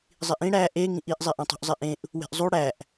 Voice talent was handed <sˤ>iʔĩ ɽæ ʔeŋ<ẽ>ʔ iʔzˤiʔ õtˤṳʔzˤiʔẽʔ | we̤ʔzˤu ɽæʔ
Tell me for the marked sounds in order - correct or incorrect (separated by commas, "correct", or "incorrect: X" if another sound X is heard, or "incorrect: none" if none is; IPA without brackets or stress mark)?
incorrect: zˤ, incorrect: ĩ